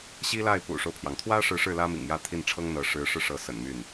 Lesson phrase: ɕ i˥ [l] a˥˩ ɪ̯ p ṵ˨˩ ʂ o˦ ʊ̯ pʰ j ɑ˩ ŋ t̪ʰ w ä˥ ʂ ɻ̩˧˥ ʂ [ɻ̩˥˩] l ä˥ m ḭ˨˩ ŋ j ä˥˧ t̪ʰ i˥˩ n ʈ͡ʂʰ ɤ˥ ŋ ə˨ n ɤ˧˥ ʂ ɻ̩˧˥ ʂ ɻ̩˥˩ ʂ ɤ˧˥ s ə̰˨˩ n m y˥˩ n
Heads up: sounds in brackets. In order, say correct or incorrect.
correct, correct

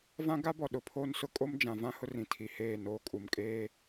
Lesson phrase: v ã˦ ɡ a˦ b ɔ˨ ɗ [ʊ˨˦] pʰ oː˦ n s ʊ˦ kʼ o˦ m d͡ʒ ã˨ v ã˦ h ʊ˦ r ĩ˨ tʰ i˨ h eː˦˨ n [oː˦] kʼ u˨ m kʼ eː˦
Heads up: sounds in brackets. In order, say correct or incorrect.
correct, correct

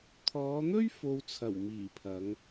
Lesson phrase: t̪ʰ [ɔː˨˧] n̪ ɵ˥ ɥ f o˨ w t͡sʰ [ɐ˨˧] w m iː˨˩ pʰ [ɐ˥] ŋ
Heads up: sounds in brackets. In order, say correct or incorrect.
correct, incorrect: ɐ˨˩, incorrect: ɐ˨˧

